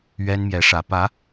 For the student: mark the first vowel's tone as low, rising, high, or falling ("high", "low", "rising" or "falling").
high